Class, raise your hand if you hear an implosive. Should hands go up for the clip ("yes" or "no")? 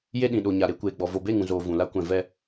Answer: yes